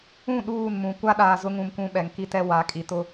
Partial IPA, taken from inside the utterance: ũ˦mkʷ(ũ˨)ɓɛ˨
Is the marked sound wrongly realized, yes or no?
yes